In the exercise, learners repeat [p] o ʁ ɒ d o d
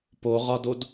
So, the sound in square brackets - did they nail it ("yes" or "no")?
yes